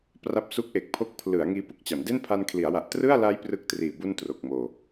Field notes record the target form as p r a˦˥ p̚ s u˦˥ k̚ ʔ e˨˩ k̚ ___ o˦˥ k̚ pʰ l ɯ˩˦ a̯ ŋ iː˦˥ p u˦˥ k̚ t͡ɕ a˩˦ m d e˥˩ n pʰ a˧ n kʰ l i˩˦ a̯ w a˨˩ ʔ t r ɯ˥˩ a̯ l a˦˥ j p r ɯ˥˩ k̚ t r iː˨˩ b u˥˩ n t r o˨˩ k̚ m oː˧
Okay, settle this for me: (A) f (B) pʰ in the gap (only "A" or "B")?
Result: B